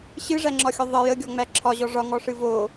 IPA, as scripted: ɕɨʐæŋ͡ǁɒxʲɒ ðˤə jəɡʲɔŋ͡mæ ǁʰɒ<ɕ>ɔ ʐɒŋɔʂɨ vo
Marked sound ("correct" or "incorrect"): incorrect